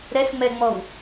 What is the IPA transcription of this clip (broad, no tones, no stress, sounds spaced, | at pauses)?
ɾ ɛ s ŋ͡m ɛ ŋ͡m ɔ w